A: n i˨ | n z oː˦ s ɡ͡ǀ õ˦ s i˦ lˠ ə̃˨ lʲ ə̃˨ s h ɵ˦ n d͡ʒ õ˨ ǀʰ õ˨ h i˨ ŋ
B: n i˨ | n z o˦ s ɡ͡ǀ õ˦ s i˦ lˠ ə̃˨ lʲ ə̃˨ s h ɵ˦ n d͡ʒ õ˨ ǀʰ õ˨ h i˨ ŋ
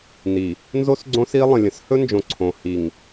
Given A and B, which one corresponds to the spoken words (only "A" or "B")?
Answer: B